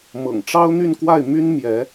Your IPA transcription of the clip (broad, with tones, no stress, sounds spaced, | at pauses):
m ɤ̰˨˩ ŋ ʈ͡ʂ ɑ˥ ʊ̯ n̪ y˥˧ n k w a˥˩ ɪ̯ m y˥ n m j ɛ˧˥